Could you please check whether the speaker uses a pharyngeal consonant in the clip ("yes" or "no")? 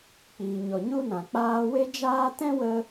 no